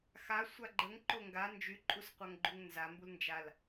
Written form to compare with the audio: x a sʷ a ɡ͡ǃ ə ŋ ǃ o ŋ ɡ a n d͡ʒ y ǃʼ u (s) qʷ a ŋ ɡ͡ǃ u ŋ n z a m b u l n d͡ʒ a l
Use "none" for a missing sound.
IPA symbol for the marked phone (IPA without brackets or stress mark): s